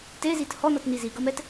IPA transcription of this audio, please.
t e z i t h ɔ n ʌ t n i z i ɡ ʌ m ɛ t

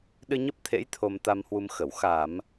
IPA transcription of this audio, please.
ɗ ɨ˧ ɲ ə˦˥ p̚ t̪ʰ ḛ˧˥ j t̪ʰ o˧ m t̪ a˧ m h w u˧ m x ə˧˩ w x a˧˩˨ m

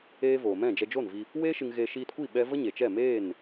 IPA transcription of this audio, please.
eː˦ v oː˨ m ɛ̃˦˨ d͡ʒ ɛ˧ d͡ʒ o˦˨ n v i˧ | w eː˦ ʃ ɨ˧ ŋ ɣ e˧ ʃ iː˧ t kʷ i˦˨ ɓ ɛ˦ v ə˦ ɲ e˨ t͡ʃ ɛ˦˨ m eː˦˨ n

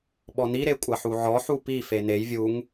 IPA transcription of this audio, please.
ɓ ɔ n i ɾ e kʷʼ ɐ ħ u ʕ ɔ ħ u p i f e n e j vʲ u ŋ

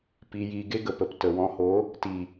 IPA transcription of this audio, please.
p i˧ j i˧ ɡ e˦ ɡ ə˨ p ə˨ p t ə˨ w ɔ̃˧ h o˨˦ | t i˨

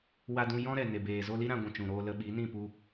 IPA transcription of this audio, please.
w a˧ d ũ˧ j ɔ̃˦ ɾ ɛ˨ n e˨ b eː˨ z o˧ l i˦ ɾ ã˧ ɡʷ ũ˨ t͡ʃ ũ˨ ɾ oː˧ l ə˧ ɓ i˨˦ n ĩ˦˨ p u˧

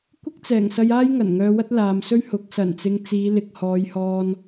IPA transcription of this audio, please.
kʷ ɪ˥ k̚ t͡s ɛː˨˩ ŋ s ɐ˧ j aː˥ j ŋ ɐ˨˩ n ŋ œː˧ w ɐ˥ t̚ l aː˨ m s ɵ˥ ɥ h ʊ˨˥ k̚ s ɐ˨˩ n t͡s ɪ˨ ŋ t͡s iː˨˧ l ɪ˨ k̚ h ɔː˨˧ j h ɔː˧ n

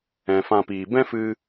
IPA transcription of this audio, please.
ɛ̃˨ f ã˧ p iː˨ b ɛ̃˦ f ɨ˧

